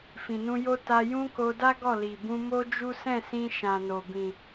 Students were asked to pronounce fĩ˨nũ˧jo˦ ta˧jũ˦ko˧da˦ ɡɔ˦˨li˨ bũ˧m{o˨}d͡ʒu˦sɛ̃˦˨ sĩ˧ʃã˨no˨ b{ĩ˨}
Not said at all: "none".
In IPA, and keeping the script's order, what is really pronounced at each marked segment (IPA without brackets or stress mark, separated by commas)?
o˦, ĩ˨